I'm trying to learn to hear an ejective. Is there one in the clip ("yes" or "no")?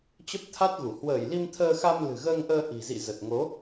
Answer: no